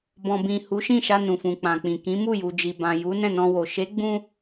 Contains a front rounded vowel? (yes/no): no